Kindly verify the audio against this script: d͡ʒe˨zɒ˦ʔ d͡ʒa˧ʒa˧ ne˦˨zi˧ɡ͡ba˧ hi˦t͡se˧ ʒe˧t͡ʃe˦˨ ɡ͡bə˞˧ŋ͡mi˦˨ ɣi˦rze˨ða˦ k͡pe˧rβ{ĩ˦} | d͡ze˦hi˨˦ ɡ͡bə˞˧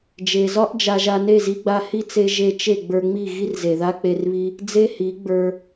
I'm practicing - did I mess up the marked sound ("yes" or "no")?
yes